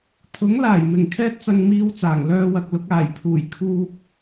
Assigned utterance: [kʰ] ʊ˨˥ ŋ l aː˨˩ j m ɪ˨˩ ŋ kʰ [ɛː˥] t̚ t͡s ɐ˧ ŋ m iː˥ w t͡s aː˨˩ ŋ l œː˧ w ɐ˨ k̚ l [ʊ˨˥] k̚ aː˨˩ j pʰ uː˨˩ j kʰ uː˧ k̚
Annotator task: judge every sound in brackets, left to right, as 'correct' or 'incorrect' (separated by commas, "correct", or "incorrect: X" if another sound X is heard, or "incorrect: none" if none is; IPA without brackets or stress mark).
incorrect: t̪ʰ, correct, correct